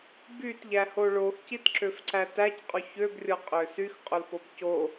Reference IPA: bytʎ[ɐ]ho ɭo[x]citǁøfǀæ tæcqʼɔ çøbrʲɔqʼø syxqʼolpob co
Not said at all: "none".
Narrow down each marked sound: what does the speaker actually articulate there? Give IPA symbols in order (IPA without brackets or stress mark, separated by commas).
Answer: æ, x